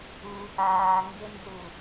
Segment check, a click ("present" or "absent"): absent